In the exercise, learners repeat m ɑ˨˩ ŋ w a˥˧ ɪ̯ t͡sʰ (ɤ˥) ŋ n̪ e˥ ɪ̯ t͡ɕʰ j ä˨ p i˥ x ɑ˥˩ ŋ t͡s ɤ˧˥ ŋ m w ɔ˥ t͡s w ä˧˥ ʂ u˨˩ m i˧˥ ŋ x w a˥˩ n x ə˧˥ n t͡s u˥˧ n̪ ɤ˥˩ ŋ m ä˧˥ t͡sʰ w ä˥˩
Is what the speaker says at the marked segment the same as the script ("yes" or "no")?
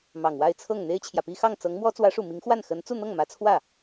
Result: no